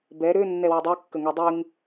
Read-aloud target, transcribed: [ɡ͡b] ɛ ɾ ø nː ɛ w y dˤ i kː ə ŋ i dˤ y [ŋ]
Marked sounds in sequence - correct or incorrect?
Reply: incorrect: b, correct

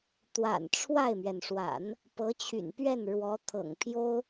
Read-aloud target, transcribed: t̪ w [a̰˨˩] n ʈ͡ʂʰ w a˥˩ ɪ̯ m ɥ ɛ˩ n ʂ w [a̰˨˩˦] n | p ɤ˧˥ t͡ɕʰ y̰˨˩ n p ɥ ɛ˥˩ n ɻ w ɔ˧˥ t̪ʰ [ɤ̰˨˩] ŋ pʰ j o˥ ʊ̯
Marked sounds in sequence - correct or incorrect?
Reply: correct, correct, correct

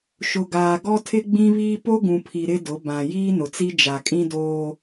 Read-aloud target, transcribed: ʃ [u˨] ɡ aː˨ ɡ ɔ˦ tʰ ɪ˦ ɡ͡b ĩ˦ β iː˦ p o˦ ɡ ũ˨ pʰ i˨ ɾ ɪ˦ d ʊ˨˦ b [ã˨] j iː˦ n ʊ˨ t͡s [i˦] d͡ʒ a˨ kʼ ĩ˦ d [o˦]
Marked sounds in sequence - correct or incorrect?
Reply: incorrect: ʊ˨, correct, correct, incorrect: oː˦

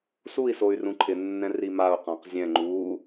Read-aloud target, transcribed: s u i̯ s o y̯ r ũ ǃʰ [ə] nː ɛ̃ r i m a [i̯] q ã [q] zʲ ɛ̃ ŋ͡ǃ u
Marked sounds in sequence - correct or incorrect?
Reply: incorrect: ɪ, incorrect: u̯, correct

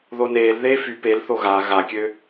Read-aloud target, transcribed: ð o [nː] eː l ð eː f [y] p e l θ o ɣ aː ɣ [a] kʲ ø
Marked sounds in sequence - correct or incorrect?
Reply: incorrect: n, correct, correct

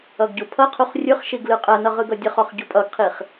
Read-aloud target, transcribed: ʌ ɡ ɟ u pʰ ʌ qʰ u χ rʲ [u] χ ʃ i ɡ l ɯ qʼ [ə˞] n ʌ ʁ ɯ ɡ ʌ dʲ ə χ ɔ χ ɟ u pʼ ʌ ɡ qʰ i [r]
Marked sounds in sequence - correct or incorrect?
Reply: incorrect: ɯ, incorrect: ɜ, incorrect: χ

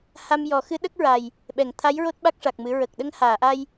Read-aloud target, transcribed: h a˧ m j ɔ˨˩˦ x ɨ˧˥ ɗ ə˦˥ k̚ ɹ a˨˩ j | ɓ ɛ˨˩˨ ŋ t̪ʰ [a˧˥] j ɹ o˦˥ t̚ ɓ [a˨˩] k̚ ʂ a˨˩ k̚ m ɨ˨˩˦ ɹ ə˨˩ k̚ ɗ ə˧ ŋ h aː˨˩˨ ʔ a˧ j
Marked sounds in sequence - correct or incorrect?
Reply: correct, incorrect: a˦˥

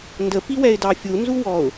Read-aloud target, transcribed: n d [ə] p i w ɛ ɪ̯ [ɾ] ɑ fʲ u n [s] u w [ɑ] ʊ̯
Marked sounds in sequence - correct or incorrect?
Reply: correct, incorrect: d, incorrect: z, incorrect: ɔ

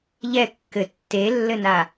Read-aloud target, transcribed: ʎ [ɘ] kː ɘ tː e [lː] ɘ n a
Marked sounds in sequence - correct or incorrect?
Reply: incorrect: ɛ, correct

